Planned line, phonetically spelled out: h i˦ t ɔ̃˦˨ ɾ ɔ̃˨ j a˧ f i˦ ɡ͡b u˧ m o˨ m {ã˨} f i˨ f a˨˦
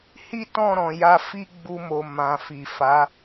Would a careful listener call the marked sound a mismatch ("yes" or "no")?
no